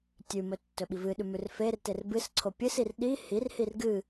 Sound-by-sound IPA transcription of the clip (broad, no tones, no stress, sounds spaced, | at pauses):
tʲ ʉ m ɵ tː ɵ ɓ i v ɨ ɗ ʉ m ʉ r f e r t e r b ɨ s ǀʰ o pʲ ɨ s i r ɗ i h i r h i r ɡ ɨ